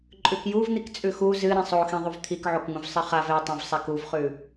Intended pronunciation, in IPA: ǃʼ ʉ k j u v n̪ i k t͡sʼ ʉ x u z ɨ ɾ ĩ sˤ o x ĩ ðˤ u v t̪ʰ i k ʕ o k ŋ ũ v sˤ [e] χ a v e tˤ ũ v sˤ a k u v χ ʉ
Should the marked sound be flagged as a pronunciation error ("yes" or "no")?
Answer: yes